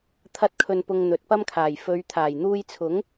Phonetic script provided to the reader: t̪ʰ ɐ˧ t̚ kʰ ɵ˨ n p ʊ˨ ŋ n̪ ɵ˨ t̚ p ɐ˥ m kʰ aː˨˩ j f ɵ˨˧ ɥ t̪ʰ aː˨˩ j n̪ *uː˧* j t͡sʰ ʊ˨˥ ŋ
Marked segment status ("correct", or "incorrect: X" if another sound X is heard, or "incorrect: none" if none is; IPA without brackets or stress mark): correct